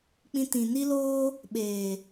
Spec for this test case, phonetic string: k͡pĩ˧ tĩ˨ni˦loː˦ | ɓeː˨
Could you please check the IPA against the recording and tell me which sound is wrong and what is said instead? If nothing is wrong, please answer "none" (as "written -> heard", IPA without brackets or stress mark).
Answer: none